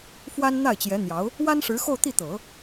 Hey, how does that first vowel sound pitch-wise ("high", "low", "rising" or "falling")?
high